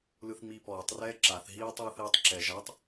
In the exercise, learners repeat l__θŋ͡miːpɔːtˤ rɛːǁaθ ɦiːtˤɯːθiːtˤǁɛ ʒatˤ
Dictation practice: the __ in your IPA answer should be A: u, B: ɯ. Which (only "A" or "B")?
B